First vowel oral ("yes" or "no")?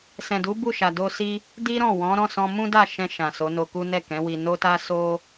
no